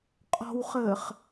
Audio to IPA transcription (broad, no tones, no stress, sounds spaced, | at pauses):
qʼ ɔ̤ w χ əː χ